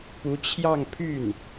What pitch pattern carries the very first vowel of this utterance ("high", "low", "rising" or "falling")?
rising